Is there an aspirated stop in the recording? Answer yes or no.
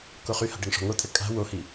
yes